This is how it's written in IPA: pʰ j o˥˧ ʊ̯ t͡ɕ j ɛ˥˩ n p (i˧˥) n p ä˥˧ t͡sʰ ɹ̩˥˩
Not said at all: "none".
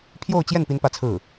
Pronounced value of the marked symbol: i˥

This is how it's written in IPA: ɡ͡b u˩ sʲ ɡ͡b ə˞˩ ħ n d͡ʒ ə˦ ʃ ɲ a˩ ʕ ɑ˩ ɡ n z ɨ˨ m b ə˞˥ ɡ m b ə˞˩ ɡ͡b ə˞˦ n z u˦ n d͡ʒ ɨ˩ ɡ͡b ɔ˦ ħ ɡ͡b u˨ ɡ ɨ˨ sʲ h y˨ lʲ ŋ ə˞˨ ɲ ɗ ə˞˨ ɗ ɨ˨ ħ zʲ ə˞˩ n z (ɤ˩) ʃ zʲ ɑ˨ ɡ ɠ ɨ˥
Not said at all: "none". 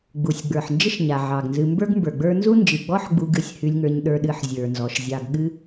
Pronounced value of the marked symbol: ɔ˩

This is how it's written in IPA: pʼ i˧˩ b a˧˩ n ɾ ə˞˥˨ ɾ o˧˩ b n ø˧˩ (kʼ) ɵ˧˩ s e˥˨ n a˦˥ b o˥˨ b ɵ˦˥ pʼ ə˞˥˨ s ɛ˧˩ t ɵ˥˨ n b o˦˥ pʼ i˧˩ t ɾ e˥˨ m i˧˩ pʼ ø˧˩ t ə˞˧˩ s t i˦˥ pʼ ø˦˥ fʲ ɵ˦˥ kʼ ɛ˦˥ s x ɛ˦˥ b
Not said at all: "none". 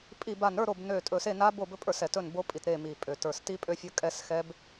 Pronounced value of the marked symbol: tʼ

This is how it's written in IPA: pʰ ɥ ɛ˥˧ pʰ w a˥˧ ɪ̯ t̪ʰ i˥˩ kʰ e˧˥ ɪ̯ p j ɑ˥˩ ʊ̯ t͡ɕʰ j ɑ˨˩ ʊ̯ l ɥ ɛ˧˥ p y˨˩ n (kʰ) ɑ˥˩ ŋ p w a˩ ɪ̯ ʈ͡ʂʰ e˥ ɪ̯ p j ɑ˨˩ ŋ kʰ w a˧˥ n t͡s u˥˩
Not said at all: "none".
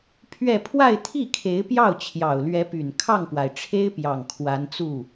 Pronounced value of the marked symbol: kʰ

